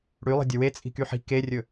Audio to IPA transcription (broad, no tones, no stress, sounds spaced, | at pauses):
ɽ y lˠ i̤ dʲ ɵ w e t͡sʼ i̤ k y ħ i̤ k e rʲ ɵ